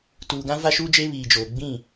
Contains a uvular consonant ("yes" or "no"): no